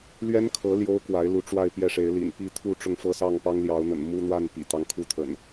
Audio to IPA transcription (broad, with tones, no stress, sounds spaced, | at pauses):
l ɥ ɛ˦ n kʰ ɤ˨˦ l j o˦ ʊ̯ k w a˨˦ ɪ̯ l u˨˦ ʈ͡ʂ w a˥˨ ɪ̯ p j ɛ˥˨ ʂ e˨˦ ɪ̯ l ḭ˨˩ n p i˥˨ t̪ʰ u˥˨ ʈ͡ʂ ʊ˥˨ ŋ f ɤ˥˨ s ɑ˥˨ ŋ p ɑ˦ ŋ l j ɑ˨˦ ʊ̯ n̪ ə̰˨˩ n m u˦ n̪ w a˥˨ n p ḭ˨˩ t̪ ɑ˦ ŋ kʰ u˦ t̪ʰ ə̰˨˩ n